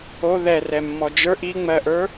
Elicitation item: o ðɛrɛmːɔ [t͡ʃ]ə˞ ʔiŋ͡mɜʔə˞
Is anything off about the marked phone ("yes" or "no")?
yes